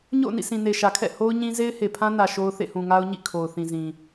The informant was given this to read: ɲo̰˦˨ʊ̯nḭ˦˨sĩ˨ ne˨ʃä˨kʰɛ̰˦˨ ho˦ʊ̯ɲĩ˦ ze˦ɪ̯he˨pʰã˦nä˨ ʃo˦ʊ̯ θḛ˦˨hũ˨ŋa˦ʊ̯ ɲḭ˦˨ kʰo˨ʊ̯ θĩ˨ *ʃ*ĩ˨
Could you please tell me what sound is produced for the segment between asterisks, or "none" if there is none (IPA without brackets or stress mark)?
z